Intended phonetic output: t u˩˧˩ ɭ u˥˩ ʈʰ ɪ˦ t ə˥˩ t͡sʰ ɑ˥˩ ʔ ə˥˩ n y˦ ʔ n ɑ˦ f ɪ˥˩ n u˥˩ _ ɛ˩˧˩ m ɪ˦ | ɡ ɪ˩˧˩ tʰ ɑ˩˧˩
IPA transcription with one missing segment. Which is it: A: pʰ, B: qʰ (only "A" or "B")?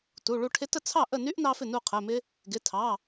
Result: B